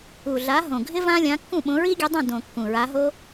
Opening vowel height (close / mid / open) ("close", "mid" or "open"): close